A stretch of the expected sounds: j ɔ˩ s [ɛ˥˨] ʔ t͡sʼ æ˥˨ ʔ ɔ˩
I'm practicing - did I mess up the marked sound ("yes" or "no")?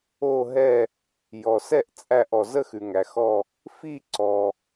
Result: no